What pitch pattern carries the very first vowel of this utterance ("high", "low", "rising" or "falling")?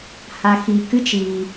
low